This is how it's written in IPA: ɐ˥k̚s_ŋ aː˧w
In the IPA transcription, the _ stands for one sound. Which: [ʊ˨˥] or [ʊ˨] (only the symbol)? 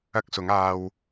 ʊ˨˥